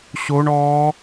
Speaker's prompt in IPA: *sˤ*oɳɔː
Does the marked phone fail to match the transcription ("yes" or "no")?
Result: yes